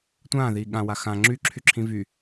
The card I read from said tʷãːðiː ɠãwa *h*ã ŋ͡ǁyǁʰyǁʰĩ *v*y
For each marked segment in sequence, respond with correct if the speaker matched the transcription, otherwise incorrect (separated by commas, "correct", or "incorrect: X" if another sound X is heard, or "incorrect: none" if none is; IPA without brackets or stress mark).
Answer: incorrect: x, correct